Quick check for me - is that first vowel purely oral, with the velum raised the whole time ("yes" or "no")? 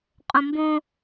no